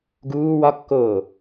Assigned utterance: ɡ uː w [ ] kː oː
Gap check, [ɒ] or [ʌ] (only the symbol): ɒ